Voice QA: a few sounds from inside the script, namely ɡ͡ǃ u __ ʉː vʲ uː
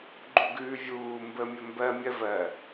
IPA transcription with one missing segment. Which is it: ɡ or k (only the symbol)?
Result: ɡ